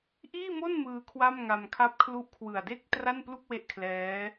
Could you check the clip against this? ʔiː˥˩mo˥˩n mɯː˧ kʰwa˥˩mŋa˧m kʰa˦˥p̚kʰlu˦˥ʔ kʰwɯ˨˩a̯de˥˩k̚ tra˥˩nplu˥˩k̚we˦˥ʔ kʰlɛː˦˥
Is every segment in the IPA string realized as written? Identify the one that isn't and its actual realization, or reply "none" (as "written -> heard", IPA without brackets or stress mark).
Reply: none